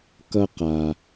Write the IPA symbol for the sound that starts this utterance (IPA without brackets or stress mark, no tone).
k